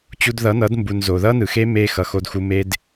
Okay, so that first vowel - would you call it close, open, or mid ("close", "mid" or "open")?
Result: close